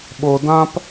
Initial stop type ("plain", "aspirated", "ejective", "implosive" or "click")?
implosive